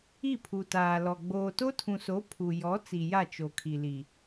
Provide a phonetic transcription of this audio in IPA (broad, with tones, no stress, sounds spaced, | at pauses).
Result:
i˦˨ pʰ u˨ t aː˨ l ɔ˨ ɡ͡b oː˨ t o˦ tʰ ũ˨ s o˨˦ pʰ u˨ j ɔ˨˦ t͡s i˨ j a˦˨ t͡ʃ o˨ kʰ i˨ l i˨